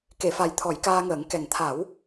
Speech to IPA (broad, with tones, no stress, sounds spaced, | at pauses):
k e˨˩˨ f a˨˩ j t̪ʰ ɔ˨˩˦ j k aː˧ ŋ əː˨˩˦ ŋ k ɛ˨˩ ŋ t̪ʰ a˨˩˦ w